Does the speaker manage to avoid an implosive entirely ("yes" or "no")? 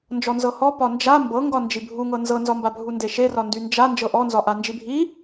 yes